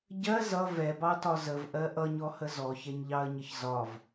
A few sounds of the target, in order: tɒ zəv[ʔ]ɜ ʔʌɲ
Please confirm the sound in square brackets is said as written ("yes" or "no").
yes